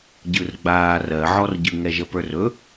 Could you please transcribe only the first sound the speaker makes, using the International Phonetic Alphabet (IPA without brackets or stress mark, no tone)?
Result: ɟ